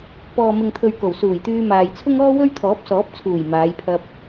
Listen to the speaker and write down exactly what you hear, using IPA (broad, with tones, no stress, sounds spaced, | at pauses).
p ɔː˨ m ɪ˨ ŋ t̪ʰ ɵ˨ ɥ k o˨˩ w s uː˨˩ j t̪ yː˧ m aː˨ j t͡sʰ ʊ˥ ŋ ɔː˥ w ɵ˥ ɥ t̪ʰ ɔː˨˥ p̚ s ɔː˨˥ p̚ t͡sʰ uː˨˩ j m aː˨˧ j pʰ ɐ˧ p̚